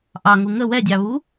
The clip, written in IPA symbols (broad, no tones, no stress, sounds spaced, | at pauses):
ʔ ɑ ŋ u ŋ ə w ɛ dʲ ɑ β u